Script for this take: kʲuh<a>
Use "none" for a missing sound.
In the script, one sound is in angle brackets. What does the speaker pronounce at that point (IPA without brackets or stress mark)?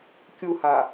a